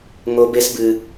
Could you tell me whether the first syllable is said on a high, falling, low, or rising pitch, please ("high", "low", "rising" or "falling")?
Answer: high